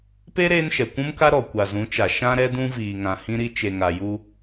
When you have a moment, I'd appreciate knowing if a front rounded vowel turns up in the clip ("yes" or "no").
no